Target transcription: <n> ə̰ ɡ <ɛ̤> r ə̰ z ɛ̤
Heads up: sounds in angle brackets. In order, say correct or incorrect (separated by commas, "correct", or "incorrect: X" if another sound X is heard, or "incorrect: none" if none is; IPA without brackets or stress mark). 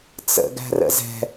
incorrect: t͡s, incorrect: æ̤